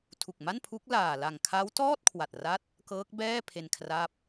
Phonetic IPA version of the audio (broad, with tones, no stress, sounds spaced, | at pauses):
tʰ u˨˩ k̚ m a˥˩ n pʰ u˦˥ k̚ l aː˨˩ l a˨˩ ŋ kʰ a˦˥ w t ɔː˥˩ t̚ kʰ w a˨˩ t̚ r a˦˥ t̚ | k ɤː˦˥ k̚ b ɛː˥˩ pʰ e˧ n kʰ r a˦˥ p̚